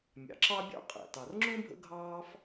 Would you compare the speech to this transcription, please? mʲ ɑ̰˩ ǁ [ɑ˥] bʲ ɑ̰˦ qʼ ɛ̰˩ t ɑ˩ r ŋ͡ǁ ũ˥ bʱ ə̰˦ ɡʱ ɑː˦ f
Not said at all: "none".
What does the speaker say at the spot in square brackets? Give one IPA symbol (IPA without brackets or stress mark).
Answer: ɑ˦